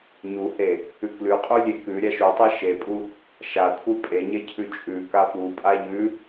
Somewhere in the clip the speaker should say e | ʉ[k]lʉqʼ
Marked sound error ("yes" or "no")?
no